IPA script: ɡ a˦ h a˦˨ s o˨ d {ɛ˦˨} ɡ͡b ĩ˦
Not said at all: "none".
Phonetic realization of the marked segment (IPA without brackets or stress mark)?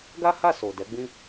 ɛ˨˦